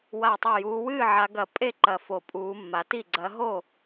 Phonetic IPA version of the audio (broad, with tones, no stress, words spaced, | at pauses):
wa˧˩tˤo˧˩ juː˨˦wɨː˥˨ ʕa˨˦ ɡɐ˧˩ pʼe˥˨ǃɐ˧˩ fo˧˩pʼuː˨˦mːa˨˦ti˥˨ ɡ͡ǀɐ˨˦ɦo˥˨